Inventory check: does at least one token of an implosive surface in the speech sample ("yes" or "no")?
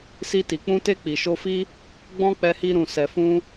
no